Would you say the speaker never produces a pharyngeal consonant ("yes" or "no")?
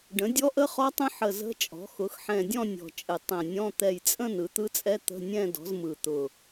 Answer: no